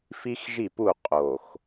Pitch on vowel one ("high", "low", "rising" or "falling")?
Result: high